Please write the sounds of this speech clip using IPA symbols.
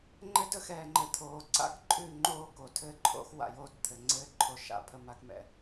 ŋ͡ǃ ɘ˦ d ə˦ x ɛː˨ ŋ͡ǃ ɘ˨ t̪ʰ oː˨ ǀ a̰˦ k ǃʼ ʉ˦˨ ŋ͡ǃ oː˦ k o˨ tʰ ɘː˦ ǃʰ o̰˦ x w a̰˨ j oː˦ t t̪ʰ ɘ˨ ŋ͡ǀ ɘː˦ ǃʰ o˨ ʃ a̰˦˨ pʰ ə˨ m a˦ k m ɛ̰˨

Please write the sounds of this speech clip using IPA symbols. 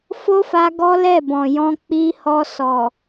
f o˦ f a˧ ɡ ɔ˦ l ɛ˦˨ b ɔ̃˨ j ɔ̃˧ k͡p i˧ h ɔ˧ s ɔ˨

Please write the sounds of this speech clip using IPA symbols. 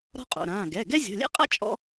ɾ ɔ̤˥ qʼ o̰˩˧˩ ɾ ãː˩˧˩ ɡ ɛ˩˧˩ ɡ ɛ˥ zʲ ɔ̤˩˧˩ lʲ ɛ̰˥ qʼ a̰˥ t͡ʃʼ ɔ̰˥

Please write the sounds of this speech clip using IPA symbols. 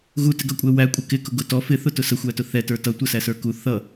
ɣ u t ɪ ɡ ʌ kʷʼ ɛ w æ kʷʼ ə k ɪ k ʊ ɡ ʊ t ɔ f ɪ θ ʊ t ʊ s ə xʷ æ t ʊ θ ɛ t ə˞ t ʌ tʷ ə s æ s ə˞ k u θ ʌ

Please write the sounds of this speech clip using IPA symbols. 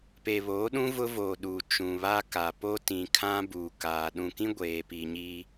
p e˨ β oː˨˦ ɗ ũ˦ v ʊ˦ v oː˨ ɗ u˨ t͡ʃ ũ˨ β a˦ k a˨ p o˦ t ĩ˨ kʰ ã˦ b u˨ k aː˨ ɗ ũ˨ k ĩ˦ ɡʷ eː˨ p i˨ ɲ iː˦

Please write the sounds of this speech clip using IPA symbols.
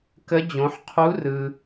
k ə˧˥ d͡ʑ õ˩˧ ħ qʰ u˧˥ r ɯ˩

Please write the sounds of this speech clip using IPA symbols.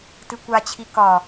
t ɨ kʷ a t͡ɕʰ i k ɒ

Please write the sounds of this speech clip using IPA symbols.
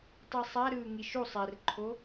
tˤ i sˤ a ɾ ɯː ŋ i ʃ u sˤ ɛ r ǃʰ o

